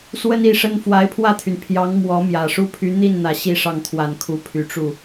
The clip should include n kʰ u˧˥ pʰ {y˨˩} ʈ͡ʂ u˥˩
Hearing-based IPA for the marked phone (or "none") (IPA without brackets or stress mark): y˨˩